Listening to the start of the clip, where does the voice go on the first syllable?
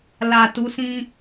low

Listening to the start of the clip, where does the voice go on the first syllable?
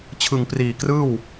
low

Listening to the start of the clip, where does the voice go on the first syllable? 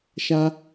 high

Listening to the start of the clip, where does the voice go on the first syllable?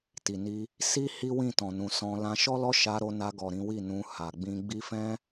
low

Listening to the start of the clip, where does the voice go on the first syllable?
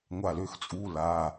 falling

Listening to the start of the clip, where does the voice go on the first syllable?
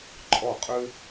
falling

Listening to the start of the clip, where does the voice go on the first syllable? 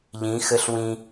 rising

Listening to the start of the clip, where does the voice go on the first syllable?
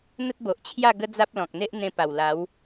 high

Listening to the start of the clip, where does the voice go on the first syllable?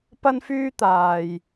high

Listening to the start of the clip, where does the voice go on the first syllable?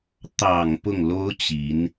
low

